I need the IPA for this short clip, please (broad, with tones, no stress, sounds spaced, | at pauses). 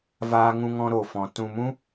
v aː˦ ŋ ũ˦ ŋ ɔ̃˦ ɾ o˧ f ɔ̃˧ t ũ˧ m ũ˦